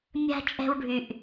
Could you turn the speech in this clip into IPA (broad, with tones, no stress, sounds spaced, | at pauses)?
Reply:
mʲ a̤˧ t͡ʃʼ ɛ̤˧ w ɖʱ y˨ ʔ